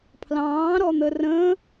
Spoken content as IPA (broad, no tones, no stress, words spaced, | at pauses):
pʰlɑ̃ːɾɔn̪ə rə̃